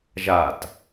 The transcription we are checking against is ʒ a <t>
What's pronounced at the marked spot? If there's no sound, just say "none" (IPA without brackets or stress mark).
t